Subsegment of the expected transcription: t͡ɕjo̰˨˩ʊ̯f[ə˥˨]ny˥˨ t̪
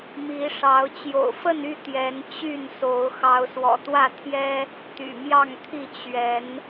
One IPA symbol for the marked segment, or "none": ə˥˨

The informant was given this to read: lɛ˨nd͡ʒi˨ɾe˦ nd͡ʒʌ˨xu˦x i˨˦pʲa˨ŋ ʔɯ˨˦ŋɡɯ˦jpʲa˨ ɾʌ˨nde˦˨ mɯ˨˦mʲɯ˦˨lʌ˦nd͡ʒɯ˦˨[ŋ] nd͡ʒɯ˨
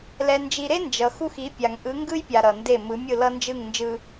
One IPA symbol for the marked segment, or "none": ŋ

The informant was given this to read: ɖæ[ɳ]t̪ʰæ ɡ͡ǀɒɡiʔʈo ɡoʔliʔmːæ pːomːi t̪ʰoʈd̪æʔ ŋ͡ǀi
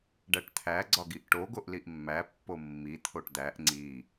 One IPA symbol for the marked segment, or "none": ʈ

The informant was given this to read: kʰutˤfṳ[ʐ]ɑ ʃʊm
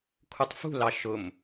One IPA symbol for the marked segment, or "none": l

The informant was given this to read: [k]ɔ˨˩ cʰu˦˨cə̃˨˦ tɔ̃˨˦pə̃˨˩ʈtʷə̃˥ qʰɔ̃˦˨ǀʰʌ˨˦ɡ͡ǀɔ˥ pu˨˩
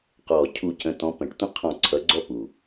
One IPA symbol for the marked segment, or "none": q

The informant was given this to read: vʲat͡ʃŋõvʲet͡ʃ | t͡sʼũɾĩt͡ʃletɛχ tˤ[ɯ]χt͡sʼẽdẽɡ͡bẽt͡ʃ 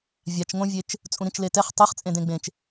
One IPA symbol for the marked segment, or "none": ɯ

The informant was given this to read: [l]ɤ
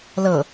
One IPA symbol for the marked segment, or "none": l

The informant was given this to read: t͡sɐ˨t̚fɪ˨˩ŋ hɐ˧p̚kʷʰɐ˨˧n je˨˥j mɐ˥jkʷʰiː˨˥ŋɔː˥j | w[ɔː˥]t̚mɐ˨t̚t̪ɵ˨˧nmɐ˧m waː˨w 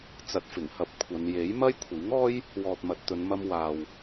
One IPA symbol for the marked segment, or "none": ɔː˨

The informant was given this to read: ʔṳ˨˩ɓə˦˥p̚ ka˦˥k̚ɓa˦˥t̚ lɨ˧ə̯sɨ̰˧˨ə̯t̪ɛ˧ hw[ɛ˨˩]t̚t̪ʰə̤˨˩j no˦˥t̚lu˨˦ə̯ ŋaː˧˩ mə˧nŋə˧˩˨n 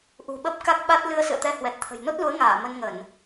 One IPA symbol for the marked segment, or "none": ɛ˨˩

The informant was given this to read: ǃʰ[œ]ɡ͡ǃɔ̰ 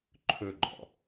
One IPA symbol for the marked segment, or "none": ɵ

